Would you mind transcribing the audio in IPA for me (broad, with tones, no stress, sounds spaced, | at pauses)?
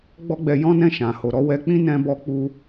ɡ͡b ɔ˦ ɡ͡b ɛ˧ j ɔ̃˦ n ɛ̃˦˨ ʃ ã˨ h o˨ ɾ ɔ˧ w ɛ˧ k͡p ĩ˦ n ɛ̃˧ b ɔ˧ k͡p u˧